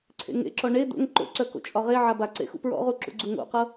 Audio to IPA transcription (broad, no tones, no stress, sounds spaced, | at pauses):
ǀʰ ḛ ŋ ḛ ǁ ɔ ɳ e d̪ o̰ ŋ ǃ o̰ ǀ œ k o̰ t͡ʃʼ ɒ ʁ e ʕ a b a ǀ ḛ x ṵ p ɹ ɔ̰ ʁ u ǁ ṵ ɡ͡ǀ u ŋ o̰ q ɤ